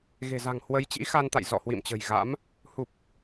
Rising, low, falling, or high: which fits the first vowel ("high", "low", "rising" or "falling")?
low